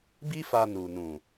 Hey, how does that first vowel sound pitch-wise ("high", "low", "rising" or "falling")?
high